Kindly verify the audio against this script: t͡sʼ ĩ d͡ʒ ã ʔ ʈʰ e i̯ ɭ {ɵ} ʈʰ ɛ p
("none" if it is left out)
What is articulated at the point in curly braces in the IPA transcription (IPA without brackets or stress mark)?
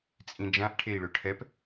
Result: ø